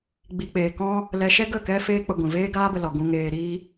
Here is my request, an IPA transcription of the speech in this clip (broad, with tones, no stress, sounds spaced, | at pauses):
ɡ͡b i˨ k͡p eː˨ k ɔ̃˧ | l ɛ˧ ʃ ɛ˦ ɡ ə˦˨ k ɛ˦ f eː˦ k͡p ə˧ ɡʷ ĩ˨ v eː˦ ɡ aː˦ b ə˧ l ɔ˧ ɡ ũ˧ ŋ eː˧ ɾ i˦